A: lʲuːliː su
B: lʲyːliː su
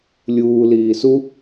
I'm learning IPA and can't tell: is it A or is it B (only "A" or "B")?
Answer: A